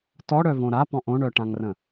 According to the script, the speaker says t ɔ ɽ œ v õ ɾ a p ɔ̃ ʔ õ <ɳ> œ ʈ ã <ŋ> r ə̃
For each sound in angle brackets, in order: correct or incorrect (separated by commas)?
correct, correct